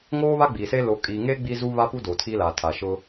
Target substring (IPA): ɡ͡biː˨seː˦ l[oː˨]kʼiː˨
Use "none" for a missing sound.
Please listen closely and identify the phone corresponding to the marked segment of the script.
oː˨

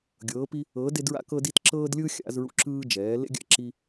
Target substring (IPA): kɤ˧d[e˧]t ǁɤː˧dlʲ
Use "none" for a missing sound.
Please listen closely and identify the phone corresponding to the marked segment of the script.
i˧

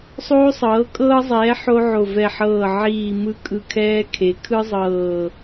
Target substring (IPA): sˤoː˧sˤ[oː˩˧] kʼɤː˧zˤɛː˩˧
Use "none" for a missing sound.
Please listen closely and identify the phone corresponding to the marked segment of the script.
ɤː˩˧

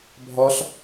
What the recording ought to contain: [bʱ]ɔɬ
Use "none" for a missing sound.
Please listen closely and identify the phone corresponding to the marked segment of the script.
bʱ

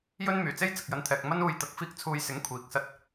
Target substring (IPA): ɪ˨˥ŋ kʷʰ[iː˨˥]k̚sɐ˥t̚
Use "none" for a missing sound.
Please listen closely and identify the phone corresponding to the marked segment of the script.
iː˨˥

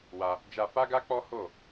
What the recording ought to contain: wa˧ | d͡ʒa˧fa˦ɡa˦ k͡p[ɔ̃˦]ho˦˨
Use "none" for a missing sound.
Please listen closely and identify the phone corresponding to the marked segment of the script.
ɔ˦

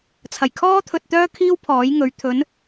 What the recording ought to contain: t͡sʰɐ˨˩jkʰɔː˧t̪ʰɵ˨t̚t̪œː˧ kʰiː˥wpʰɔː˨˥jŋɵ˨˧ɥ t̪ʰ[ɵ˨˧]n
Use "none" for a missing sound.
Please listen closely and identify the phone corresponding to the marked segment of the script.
ɵ˨˧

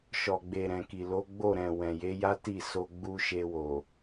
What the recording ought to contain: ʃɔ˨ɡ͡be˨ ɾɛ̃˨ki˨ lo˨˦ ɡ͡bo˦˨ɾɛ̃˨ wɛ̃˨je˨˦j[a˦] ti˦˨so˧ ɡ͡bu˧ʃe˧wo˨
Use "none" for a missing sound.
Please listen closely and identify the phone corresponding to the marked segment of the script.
a˦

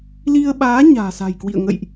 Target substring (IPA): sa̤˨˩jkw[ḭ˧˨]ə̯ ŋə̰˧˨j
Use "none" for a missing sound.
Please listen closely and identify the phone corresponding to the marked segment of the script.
ḭ˧˨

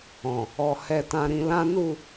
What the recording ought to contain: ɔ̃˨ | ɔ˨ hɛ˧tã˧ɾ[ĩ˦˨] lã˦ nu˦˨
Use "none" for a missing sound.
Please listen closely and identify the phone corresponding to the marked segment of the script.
ĩ˧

